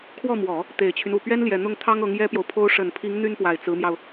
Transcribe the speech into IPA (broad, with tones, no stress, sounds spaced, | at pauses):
kʰ w ɔ˥˩ m w ɔ˨˩˦ | t̪ e˨˩ ɪ̯ t͡ɕʰ y˦ n u˨˩ p ɥ ɛ˥ n l j ɛ˨˩ n̪ ʊ˥˩ ŋ t̪ʰ ɑ˥ ŋ ɤ˧˥ ŋ j ɛ˥ p j o˨ ʊ̯ pʰ o˥ ʊ̯ ʂ ə˨˩ n pʰ i˧˥ ŋ n̪ y˥ n p w a˨˩ ɪ̯ t͡s ɹ̩˧˥ m j ɑ˧ ʊ̯